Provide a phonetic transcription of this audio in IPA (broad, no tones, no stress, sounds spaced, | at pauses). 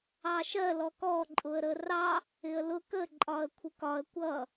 ɑ ʃ ɜ l ɔ k ɔ ǃʼ ʊ ə̯ ɾ ə r ɑ | ɪ ə̯ l ʊ k ə ǃʼ ɒ ə̯ kʷʰ ɪ k ɒ ə̯ kʷ ʌ